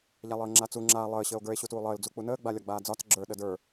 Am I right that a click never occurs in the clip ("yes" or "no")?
no